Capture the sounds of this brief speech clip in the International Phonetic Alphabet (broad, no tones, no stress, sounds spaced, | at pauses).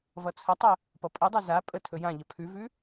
v ʌ t͡sʰ ə tˤ ɵ | p ʌ pʼ i dˤ ʉ z a pʼ ə tʰ ɵ j ã ʎ ə pʰ ʉ v ʉ